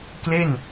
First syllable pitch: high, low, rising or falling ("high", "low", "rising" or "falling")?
falling